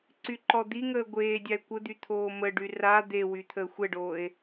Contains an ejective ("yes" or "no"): no